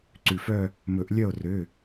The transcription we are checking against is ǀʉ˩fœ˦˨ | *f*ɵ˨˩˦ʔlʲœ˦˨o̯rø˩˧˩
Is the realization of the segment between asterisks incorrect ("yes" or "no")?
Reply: yes